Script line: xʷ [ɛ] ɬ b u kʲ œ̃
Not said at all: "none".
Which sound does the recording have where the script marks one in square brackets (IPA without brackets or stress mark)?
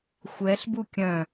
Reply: ɛ